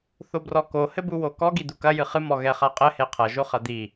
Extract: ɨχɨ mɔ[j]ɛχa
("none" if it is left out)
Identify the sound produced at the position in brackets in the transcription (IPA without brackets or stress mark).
ɣ